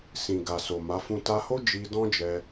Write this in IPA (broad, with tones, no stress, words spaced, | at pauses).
sĩ˨ɡa˨so˨ ma˨˦fũ˦ ta˧ho˦ d͡ʒi˦ dɔ̃˦d͡ʒɛ˧